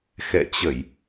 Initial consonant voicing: voiceless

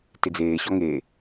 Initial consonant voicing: voiceless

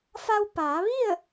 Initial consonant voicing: voiceless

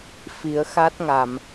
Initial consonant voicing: voiceless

